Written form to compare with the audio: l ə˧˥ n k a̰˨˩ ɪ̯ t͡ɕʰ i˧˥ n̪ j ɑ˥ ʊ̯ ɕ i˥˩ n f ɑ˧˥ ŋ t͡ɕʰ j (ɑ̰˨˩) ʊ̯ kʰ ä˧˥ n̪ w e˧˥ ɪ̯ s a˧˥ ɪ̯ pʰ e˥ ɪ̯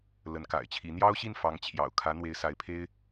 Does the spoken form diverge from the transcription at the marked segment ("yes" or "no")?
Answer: no